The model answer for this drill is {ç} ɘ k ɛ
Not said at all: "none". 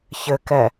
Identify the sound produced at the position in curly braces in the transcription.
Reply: ç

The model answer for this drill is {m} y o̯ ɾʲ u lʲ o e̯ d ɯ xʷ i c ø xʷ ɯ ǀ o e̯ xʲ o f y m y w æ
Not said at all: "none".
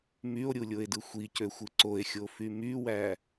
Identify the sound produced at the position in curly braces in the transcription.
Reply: m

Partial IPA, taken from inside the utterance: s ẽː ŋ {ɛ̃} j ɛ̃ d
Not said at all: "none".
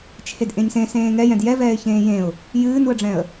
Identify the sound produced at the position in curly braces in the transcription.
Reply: ɛ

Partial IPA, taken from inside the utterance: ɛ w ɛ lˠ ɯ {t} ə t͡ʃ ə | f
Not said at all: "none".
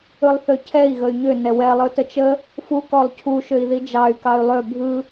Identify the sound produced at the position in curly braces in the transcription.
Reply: t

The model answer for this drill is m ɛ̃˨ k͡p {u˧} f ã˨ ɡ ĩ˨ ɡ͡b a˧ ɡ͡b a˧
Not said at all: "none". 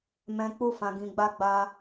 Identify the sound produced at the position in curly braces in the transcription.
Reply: u˧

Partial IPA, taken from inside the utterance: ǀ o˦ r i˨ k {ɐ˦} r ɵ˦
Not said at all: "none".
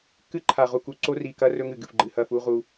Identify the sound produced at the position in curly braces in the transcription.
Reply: ɐ˦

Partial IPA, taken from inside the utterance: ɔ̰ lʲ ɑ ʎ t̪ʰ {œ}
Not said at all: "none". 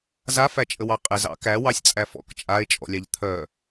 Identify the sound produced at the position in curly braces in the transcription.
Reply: œ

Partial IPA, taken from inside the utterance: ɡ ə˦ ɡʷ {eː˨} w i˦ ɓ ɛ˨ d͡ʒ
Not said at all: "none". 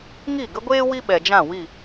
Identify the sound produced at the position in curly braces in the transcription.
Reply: eː˦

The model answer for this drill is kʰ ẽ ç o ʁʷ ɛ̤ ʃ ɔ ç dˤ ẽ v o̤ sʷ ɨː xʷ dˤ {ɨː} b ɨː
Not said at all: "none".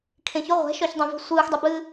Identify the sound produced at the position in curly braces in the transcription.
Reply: ɨ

